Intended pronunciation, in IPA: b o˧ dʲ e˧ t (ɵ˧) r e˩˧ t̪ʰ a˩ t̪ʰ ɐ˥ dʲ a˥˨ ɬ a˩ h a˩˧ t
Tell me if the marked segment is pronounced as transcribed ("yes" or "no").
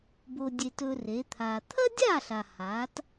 yes